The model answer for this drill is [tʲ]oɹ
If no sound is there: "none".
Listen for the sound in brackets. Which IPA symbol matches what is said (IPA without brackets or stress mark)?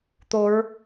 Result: t̪